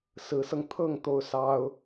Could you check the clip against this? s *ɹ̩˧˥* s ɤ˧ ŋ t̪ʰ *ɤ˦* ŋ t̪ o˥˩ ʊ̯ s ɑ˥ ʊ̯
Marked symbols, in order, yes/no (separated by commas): yes, no